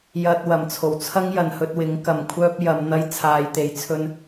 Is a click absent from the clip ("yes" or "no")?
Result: yes